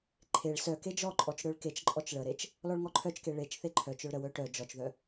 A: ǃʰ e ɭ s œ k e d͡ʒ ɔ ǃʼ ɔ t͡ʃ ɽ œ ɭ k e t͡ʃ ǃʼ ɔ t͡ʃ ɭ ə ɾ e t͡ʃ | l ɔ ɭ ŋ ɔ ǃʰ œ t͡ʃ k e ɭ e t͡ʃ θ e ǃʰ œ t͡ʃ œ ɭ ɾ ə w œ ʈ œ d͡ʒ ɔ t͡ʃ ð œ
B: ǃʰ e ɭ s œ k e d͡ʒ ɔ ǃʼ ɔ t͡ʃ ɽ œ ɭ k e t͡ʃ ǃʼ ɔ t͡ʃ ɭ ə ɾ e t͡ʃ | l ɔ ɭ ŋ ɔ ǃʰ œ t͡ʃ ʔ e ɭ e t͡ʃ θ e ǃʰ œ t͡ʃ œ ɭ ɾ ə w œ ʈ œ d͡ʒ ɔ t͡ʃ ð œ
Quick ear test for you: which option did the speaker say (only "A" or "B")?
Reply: A